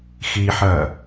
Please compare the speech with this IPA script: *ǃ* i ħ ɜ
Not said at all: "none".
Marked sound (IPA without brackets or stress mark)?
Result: x